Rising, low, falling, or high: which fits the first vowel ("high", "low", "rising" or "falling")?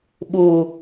low